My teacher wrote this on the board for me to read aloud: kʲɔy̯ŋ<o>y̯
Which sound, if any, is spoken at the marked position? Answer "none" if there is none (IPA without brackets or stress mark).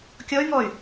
ɔ